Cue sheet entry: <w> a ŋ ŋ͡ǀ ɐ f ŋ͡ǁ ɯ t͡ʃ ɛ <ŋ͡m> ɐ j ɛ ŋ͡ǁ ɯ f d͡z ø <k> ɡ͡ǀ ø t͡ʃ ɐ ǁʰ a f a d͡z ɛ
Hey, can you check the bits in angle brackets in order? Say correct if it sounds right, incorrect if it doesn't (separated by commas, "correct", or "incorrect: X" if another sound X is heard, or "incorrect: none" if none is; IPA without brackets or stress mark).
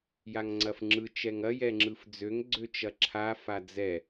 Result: incorrect: j, incorrect: ŋ, incorrect: ŋ